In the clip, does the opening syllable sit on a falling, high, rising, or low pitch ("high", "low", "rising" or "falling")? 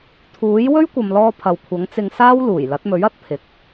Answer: rising